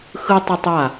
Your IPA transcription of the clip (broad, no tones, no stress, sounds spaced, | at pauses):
x ɯ tˤ ɯ tˤ w a